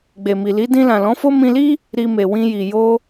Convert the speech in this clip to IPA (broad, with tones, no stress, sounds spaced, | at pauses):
ɡ͡b e˨ m i˨ l i˨˦ d ĩ˧ l ã˨ l ɔ̃˨˦ f o˦ m ĩ˧ l i˦ | ɾ i˧ m e˨ w ĩ˧ j i˨ j o˧